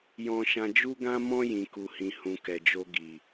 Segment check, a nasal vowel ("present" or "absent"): present